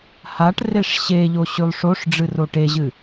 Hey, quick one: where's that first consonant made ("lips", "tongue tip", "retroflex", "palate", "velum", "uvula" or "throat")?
throat